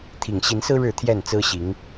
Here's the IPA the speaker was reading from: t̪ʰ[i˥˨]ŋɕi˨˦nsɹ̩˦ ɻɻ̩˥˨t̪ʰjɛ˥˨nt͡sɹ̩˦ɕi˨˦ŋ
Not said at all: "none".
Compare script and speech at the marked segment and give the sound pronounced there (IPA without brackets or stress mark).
i˨˩